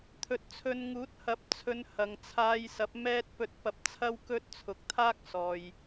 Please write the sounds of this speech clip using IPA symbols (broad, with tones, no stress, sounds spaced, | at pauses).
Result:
t̪ʰ ɵ˨ t̚ t͡sʰ ɵ˧ n ŋ uː˨˥ t̚ h ɐ˨˥ p̚ t͡sʰ ɵ˨˧ n h ɐ˨ ŋ t͡sʰ aː˧ j s ɐ˨˥ p̚ m ɛː˥ t̚ p ɵ˧ t̚ p ɐ˧ p̚ t͡sʰ ɐ˥ w k ɵ˥ t̚ t͡sʰ ʊ˨˥ k̚ t̪ʰ aː˥ k̚ s ɔː˨ j